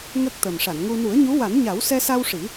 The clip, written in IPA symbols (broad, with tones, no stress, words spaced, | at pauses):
ŋə˦˥k̚t̪ə˨˩m ʂa˨˩˨nŋu˧ nu˨˩˦ə̯ɲu˧˥wa˨˩˦nɲa˨˩˦w sɛ˧sa˧w ʂi˨˩˦